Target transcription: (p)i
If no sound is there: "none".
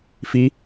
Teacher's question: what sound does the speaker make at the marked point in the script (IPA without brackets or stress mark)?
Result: f